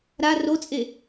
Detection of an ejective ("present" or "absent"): present